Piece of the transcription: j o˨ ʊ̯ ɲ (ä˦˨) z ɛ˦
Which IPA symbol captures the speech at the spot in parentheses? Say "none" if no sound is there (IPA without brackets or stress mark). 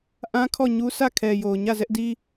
ä˦˨